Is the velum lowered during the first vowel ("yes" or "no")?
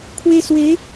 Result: no